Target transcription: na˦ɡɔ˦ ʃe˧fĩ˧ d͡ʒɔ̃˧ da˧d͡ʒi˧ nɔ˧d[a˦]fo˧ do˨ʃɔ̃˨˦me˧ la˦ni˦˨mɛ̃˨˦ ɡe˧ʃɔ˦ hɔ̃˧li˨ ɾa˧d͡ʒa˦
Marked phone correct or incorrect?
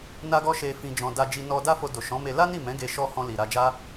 correct